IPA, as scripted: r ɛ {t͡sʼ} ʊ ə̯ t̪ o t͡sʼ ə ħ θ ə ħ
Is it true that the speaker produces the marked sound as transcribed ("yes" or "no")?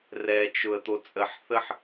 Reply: no